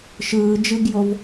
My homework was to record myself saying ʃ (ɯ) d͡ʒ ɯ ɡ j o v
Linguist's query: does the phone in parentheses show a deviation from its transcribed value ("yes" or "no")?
yes